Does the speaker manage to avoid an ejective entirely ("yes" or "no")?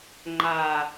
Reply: yes